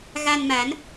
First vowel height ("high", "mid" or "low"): low